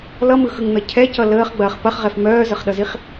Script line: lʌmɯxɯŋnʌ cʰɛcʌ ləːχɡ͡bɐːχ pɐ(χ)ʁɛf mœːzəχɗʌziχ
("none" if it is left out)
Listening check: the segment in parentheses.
χ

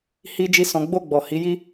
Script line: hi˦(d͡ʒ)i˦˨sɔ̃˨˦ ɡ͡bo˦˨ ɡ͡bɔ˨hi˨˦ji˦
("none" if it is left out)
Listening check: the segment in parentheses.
d͡ʒ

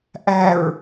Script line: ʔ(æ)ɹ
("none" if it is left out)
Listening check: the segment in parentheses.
æ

